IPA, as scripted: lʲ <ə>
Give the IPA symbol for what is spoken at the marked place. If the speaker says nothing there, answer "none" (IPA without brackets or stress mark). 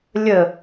ə